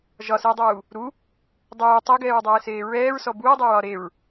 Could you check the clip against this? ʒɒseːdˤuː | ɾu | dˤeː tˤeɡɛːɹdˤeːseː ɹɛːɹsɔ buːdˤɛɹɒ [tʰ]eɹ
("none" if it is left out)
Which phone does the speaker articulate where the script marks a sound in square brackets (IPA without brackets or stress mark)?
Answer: ɾ